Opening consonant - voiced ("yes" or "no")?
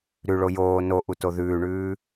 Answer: yes